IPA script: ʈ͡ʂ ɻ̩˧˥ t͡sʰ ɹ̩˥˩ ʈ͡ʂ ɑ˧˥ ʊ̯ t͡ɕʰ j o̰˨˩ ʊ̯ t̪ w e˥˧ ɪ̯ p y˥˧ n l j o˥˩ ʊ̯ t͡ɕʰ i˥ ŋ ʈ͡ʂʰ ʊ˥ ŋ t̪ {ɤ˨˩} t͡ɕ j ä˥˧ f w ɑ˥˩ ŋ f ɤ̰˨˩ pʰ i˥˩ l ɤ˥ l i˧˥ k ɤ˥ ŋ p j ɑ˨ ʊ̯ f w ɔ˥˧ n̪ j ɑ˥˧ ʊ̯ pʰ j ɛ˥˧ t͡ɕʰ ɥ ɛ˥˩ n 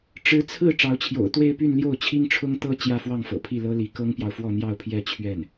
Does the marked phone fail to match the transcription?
yes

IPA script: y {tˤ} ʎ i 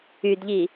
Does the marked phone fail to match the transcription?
yes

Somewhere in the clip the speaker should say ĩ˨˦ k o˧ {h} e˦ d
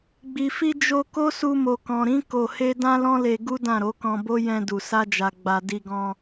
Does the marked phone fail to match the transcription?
no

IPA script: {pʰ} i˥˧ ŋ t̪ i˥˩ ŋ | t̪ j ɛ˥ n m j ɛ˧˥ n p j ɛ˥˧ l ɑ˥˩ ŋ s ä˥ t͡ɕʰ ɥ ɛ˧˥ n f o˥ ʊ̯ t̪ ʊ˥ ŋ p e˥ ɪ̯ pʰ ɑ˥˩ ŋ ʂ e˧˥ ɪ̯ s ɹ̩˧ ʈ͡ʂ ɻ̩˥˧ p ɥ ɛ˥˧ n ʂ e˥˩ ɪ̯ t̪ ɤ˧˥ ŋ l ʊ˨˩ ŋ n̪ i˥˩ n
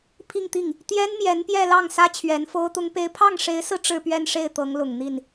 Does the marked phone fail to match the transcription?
no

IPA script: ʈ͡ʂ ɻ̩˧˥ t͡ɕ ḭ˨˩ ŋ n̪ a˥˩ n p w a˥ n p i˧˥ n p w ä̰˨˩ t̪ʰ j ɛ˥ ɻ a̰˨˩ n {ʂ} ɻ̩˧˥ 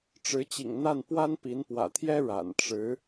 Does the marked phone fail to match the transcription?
yes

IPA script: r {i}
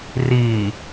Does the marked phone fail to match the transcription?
yes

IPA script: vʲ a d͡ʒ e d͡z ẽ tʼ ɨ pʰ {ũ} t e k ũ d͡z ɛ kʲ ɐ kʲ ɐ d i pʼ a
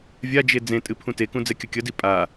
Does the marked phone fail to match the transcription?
no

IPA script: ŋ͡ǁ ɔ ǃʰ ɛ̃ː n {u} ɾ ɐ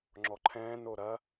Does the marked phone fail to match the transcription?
yes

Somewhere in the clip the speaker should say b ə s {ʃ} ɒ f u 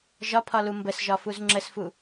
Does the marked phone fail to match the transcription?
yes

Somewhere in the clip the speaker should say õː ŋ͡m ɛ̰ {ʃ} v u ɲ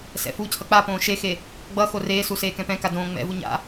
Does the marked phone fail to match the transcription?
yes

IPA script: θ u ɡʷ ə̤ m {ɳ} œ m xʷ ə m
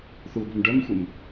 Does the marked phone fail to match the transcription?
yes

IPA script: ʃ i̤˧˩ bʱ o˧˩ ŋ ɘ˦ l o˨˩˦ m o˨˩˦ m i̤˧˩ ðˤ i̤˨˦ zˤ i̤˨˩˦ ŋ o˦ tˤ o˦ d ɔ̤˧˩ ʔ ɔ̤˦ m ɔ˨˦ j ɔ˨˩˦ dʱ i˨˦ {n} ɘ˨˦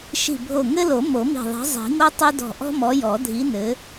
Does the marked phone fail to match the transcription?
no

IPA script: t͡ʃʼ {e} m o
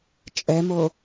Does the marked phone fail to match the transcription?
yes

